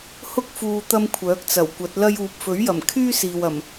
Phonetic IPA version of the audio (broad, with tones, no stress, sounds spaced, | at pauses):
h ʊ˥ k̚ f uː˨ t̪ ɐ˥ m kʷʰ œː˨˥ k̚ t͡s ɐ˨˩ w kʷ ɐ˨˥ t̚ l ɐ˥ j uː˧ p̚ f ɵ˨˥ ɥ j ɐ˨˩ m kʰ yː˥ s iː˨ w ɐ˨˩ m